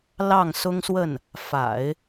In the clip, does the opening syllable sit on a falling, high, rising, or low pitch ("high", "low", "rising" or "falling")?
falling